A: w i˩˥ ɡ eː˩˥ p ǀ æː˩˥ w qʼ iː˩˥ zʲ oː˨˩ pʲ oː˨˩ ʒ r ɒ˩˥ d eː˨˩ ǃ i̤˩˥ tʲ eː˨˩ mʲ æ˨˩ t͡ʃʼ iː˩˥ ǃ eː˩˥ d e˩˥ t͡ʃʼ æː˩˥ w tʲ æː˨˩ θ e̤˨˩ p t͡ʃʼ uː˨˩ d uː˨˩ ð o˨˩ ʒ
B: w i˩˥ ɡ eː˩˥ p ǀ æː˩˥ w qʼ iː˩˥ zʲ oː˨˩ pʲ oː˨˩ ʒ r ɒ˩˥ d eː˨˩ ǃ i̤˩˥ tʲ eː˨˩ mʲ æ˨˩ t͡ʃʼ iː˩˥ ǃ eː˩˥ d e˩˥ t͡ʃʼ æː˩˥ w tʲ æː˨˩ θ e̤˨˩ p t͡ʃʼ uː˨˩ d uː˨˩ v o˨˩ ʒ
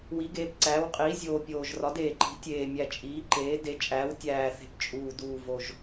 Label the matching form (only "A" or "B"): B